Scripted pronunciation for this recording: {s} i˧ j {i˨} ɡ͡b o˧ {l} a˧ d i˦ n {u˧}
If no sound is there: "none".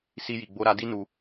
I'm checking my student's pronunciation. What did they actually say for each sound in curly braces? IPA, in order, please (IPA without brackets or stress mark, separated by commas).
s, i˨, ɾ, u˧